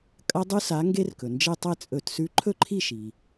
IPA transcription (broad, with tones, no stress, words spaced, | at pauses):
kʼɐ˦˥dˤʉ˦˥sa˨˥ ŋɡe˦˥rkɵ˩nd͡ʒe˥˩ tˤe˥˩t͡sʼɵ˧˩˧t sʉ˨˥ǃʰɵ˥˩ǃʰi˥˩ʃi˩